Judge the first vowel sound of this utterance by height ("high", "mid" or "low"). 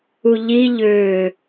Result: high